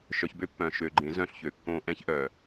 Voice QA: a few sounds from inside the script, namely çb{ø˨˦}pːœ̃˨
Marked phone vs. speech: incorrect: ø˦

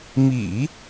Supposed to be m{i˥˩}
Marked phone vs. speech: incorrect: ḭ˨˩˦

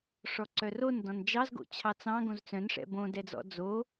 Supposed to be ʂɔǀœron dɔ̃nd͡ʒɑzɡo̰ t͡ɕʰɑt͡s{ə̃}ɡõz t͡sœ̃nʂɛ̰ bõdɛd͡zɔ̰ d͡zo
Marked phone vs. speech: incorrect: ɑ̃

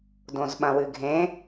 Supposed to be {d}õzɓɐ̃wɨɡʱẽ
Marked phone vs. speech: correct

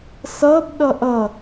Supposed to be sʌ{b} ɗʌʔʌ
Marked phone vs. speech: correct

